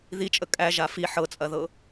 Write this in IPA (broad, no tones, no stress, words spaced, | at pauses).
ðit͡ʃʼə kʼæʒa fi ħɤt͡sʼɐðɤ